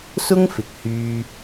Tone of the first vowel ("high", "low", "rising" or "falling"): high